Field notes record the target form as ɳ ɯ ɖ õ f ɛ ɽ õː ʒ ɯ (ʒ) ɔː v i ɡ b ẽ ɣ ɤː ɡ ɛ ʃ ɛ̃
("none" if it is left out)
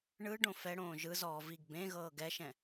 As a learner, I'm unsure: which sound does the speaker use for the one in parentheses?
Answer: z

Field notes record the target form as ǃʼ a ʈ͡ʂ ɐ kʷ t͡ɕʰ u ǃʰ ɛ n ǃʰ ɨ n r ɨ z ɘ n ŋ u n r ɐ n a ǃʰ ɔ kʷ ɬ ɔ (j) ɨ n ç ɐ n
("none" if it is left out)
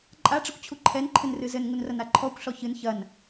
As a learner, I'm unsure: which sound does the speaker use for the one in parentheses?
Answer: ç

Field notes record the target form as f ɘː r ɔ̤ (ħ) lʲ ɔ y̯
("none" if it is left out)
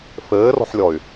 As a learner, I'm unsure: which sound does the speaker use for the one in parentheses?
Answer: ħ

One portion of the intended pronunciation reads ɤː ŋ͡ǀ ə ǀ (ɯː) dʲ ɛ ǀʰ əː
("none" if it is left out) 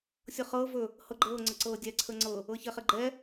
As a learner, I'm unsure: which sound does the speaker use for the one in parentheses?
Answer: ɤː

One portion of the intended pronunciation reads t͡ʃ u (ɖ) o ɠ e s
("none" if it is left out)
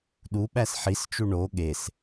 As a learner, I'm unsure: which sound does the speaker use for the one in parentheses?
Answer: ɳ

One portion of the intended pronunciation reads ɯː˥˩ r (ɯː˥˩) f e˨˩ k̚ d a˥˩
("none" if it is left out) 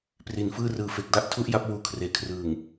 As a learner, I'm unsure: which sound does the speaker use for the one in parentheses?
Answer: ɯː˨˩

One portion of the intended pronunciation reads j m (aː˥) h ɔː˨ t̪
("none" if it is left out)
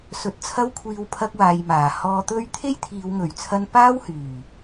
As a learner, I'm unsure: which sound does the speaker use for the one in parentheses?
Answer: aː˨˩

